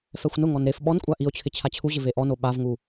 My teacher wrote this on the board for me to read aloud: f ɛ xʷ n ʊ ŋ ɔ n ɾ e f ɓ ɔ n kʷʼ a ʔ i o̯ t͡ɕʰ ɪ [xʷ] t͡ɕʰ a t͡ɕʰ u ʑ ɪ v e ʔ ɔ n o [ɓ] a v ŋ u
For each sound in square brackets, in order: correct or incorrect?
incorrect, correct

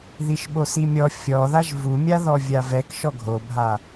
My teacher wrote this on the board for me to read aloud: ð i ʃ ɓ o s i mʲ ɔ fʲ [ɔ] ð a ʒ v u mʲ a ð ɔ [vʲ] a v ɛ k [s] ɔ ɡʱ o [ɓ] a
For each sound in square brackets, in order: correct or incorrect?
correct, correct, incorrect, incorrect

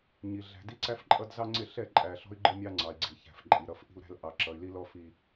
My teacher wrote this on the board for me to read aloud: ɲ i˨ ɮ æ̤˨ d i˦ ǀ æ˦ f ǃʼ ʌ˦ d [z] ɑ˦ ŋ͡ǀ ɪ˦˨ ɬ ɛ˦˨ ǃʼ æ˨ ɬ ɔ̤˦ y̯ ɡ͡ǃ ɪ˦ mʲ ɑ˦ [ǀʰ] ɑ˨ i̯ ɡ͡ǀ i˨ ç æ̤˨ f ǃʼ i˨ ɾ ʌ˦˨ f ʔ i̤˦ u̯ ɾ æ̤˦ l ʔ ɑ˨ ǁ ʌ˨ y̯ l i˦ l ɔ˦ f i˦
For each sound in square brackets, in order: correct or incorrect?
correct, incorrect

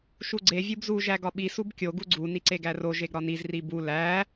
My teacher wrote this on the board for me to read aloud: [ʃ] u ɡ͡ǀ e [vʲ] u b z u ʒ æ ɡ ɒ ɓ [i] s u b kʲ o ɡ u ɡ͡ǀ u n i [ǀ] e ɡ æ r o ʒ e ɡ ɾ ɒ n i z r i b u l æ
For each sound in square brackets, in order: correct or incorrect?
correct, correct, correct, correct

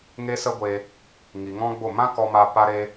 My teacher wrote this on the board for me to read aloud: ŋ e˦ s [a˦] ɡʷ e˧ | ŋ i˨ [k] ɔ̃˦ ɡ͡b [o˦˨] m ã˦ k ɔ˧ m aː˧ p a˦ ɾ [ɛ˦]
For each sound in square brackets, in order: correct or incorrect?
incorrect, incorrect, correct, incorrect

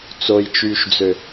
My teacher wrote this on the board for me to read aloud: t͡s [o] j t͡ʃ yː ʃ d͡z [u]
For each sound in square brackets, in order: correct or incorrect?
correct, incorrect

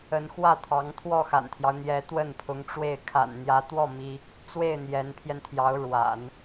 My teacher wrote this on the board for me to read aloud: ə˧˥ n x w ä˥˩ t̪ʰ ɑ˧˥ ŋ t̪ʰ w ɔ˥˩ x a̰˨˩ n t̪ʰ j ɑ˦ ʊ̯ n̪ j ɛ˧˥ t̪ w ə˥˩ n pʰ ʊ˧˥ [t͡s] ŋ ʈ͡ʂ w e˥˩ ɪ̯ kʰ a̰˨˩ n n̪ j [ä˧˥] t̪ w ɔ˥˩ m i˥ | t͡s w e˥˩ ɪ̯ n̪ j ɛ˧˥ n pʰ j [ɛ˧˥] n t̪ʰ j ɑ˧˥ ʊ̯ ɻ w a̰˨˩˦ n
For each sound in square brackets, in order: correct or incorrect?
incorrect, correct, incorrect

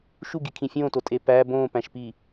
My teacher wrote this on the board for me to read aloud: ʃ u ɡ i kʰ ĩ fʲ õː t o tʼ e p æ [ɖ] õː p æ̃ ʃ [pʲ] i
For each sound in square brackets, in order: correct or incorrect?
incorrect, incorrect

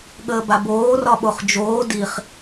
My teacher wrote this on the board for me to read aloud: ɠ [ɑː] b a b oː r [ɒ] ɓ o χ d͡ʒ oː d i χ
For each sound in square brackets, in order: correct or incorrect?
incorrect, correct

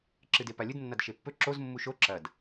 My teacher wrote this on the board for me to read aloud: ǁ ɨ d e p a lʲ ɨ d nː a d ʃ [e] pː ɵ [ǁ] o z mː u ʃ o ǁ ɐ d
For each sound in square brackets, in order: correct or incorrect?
correct, correct

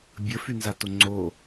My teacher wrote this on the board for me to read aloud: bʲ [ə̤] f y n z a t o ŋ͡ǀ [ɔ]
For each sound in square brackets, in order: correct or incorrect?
incorrect, incorrect

